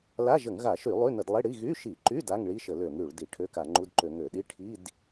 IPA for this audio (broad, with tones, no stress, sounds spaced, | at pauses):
l a˧˥˧ ʒ ə˧˩˧ ŋ ɣ a˧˩˧ ʃ y˧˩˧ lˠ y˧˥˧ n ə˧˩˧ d lˠ i˧˥˧ ɽ i˧˥˧ ɣ y˧˥˧ ʃ i˧˩˧ ǃ y˧˥˧ d a˧˥˧ ŋ ɭ i˧˥˧ ʃ ə˧˩˧ l ø˧˩˧ ŋ ɽ y˧˩˧ ɭ d i˧˩˧ ʈʰ ø˧˥˧ k a˧˩˧ ŋ͡ǃ u˧˥˧ d ǃ ø˧˩˧ ŋ ø˧˩˧ ɗ i˧˥˧ ʈʰ i˧˥˧ d